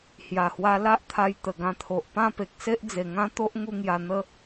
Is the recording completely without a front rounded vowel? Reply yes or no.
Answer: yes